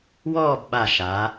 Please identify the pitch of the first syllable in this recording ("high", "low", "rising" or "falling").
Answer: falling